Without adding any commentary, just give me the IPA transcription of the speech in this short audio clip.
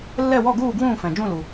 lː ɛ˥˨ w ɔ˥˨ ɡ uː˥˨ ɡ w ũː˥˨ f ɛ̃˩ d͡ʒ ũ˥˨ l u˩

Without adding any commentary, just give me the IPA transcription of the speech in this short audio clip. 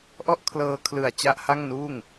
ʔ ɔ˥˩ ʔ kʰ l ɤː˧ kʰ l ɯ˨˩ a̯ t͡ɕ a˥˩ ʔ h a˥˩ ŋ n uː˥˩ ŋ

